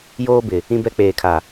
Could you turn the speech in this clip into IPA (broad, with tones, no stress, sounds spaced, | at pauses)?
j oː˦ b ɪ˨ | ĩ˦ b ɛ˦ k͡p eː˨ kʰ a˨